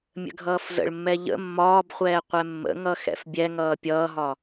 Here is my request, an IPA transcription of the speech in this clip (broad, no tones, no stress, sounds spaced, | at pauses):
mʲ ə̰ ɡʱ ʌː f z ə̰ ɭ mː ɛ ʎ ə̰ mː ɒː b χʷ ɛː qʷ ɛ mː ə̰ ŋ ʌ x ɛ̰ f bʲ ɛ ŋ ʌː pʲ ʌː ɦ ɒ